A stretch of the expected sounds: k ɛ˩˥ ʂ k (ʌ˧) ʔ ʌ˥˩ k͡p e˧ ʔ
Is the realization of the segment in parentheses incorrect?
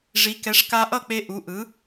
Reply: yes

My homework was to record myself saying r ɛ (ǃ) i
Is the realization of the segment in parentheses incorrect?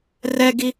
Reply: yes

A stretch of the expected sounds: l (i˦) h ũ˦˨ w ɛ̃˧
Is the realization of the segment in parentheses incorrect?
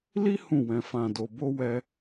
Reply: no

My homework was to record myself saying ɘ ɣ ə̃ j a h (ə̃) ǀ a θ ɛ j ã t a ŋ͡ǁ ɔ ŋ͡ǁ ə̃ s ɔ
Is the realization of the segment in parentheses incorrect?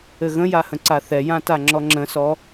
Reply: no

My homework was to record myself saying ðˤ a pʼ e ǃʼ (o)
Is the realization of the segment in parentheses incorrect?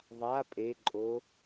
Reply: no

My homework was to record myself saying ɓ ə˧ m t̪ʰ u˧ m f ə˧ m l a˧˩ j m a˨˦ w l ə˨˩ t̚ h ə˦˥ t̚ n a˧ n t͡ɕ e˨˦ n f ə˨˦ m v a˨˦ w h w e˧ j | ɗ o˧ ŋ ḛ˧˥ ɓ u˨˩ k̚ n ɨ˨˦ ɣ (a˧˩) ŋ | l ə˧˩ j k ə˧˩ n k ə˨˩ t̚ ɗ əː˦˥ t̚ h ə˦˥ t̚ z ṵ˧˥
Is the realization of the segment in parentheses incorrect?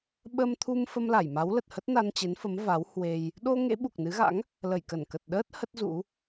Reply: yes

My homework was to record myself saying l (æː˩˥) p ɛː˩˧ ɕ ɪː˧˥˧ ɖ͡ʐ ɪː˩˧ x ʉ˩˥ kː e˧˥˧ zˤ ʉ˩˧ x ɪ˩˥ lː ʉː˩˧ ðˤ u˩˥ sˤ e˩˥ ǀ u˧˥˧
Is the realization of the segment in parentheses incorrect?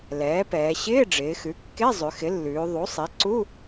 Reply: yes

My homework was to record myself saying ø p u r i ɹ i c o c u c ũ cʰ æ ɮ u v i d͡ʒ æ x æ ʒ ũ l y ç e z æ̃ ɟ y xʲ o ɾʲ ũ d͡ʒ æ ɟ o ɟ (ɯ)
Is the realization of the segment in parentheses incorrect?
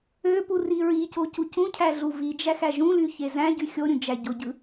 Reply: no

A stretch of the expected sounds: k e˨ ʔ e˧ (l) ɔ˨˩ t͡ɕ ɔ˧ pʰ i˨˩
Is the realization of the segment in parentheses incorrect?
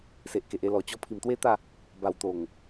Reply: no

